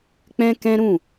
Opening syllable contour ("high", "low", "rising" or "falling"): high